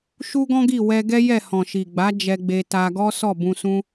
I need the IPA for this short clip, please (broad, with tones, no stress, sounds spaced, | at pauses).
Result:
ʃ u˦ ɡ ɔ̃˦ ɡ i˦˨ w ɛ˧ ɡ ɛ˦ j ɛ˦˨ h ɔ̃˨ ʃ i˨ ɡ͡b a˨˦ d͡ʒ ɛ˧ ɡ͡b e˧ t a˧ ɡ ɔ˦ s ɔ˦˨ b ũ˧ s ũ˦